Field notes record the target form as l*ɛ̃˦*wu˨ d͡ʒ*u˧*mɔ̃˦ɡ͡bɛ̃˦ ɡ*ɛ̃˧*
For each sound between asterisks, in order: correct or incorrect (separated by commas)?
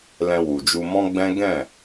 incorrect, correct, incorrect